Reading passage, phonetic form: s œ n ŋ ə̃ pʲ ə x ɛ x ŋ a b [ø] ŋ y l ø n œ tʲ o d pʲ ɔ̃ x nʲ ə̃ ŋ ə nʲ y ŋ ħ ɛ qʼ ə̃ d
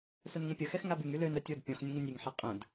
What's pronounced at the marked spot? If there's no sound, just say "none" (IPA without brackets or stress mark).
y